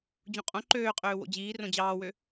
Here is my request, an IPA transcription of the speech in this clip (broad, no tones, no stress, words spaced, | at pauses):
d͡ʑũqʼõ ǃøːqʼøː wo̰d͡ʑiː rõd͡ʑɑːwø